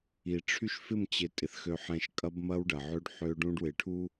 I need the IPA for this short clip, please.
i˨ ʈ͡ʂʰy˦ʃfɪ˦˨mt͡ɕɪ˨ tʼɪ˨θxø˨ħɛ̃˨ʃ kʼɐ˦bmɐ˦wɖɐ˨ʕø˦ɖ ħø˦ɖũ˦ɖwɪ˨ʈʰu˦

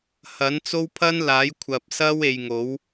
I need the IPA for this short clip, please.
hɐ˨˥nt͡so˥w pʰɐ˥nlaː˨˥j kʷʰɐ˨p̚sɐ˥w e˧jŋo˨˥w

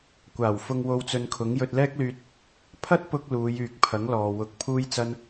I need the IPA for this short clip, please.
kʷaː˨˩w fʊ˧ŋ wo˧wt͡sɵ˧nkʰʊ˨˥ŋ jɵ˧t̚lɛː˥k̚lyː˧t̚ | pʰɐ˥t̚pʊ˧k̚ luː˨˧jyː˨k̚pʰɐ˨˥ŋlɔː˨ wʊ˨˥k̚ pʰuː˥jt͡sɐ˥n

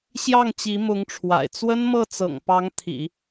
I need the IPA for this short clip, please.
ɕjɑ˥˩ŋt͡ɕi˧˥ mʊ˧˥ŋʈ͡ʂʰwa̰˨˩ɪ̯ t͡swə˥nmɤ˥˩ t͡sɤ̰˨˩ŋ pɑ˧˥ŋt̪ʰḭ˨˩˦

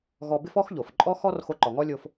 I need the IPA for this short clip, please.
ɣɔ˧bɪ˥fɔ˥xʎo˩f ǃʼɔ˥xɔ˥rxo˧ ǃɔ˩ŋɔ˥lʲo˧f

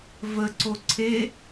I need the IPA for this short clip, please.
vəǀo ǀʰe

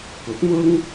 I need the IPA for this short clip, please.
kʊ˨˥k̚mʊ˥ŋ

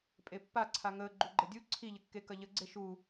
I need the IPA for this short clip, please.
pʼepːa ǀʰaŋəː ɡ͡ǃuɡ͡ǃədʲu ǀʰiʎəkːe kɐʎəɡ͡ǀe ʃu

